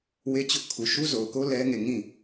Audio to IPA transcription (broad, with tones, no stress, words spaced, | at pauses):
we˦t͡ɕʊ˦ʔ kʰu˨ʃu˦zo˨ʊ̯ko˦ lɛ˦ŋe˦˨ ŋĩ˦˨